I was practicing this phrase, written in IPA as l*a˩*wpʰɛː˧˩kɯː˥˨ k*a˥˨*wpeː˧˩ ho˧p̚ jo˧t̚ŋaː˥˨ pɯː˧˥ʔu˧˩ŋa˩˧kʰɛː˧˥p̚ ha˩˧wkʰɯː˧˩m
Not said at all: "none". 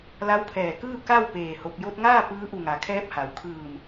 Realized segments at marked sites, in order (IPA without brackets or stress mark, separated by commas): a˧˥, a˥˨